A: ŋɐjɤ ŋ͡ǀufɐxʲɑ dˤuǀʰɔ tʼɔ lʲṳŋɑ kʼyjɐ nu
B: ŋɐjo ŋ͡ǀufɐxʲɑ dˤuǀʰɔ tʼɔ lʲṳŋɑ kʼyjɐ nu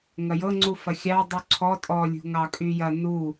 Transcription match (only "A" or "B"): A